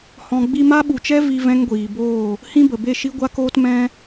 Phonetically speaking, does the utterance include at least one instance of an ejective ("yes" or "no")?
no